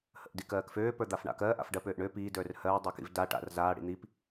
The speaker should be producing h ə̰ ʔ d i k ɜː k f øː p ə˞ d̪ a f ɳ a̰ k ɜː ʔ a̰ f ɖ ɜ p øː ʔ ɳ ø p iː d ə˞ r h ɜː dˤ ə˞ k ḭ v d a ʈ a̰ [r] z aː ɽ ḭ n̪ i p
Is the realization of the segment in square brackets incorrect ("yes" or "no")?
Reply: no